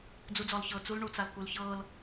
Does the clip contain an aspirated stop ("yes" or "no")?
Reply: no